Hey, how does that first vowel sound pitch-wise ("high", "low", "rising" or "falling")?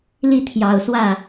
falling